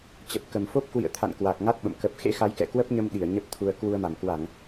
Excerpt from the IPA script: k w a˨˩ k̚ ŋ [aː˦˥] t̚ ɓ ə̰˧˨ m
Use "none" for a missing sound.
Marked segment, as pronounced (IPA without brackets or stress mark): a˦˥